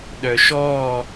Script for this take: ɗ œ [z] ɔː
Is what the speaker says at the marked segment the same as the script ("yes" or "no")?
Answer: no